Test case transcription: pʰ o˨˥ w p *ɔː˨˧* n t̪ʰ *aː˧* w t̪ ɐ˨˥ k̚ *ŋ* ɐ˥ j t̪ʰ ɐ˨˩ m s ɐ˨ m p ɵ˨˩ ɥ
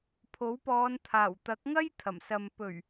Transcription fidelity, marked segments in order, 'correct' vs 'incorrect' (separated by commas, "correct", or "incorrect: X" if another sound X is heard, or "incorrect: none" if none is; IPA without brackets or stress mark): correct, incorrect: aː˨˩, correct